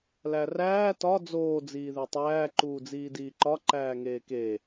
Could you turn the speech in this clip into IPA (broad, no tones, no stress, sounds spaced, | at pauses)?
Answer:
l æ r æː t ɒ d͡z oː d͡z iː ð e tˤ æː ǃ uː d͡z iː d iː ǃ ɒ ǃ æː ŋ eː k e